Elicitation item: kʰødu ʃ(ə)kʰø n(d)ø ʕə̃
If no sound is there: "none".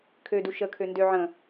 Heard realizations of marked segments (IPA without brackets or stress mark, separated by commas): ə, d